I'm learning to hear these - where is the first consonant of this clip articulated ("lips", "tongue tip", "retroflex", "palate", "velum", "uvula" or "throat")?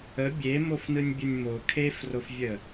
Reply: lips